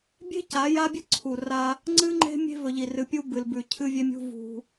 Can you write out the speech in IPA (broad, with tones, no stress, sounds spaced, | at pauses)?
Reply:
bʲ e̤˦ c a˨˦ j a˦ bʲ ɨ˦ ǀʰ u˨ r a˦ | ŋ͡ǀ ɨ˦ ŋ͡ǃ e̤˦ mʲ e̤˦ v ɵ˨ ʎ i˨ r ɨ˨ pʲ u˦ b ɨ˨ l b ʉ˨ cʰ ɨ˦ vʲ e˦ mʲ ṳ˦ v ṳ˦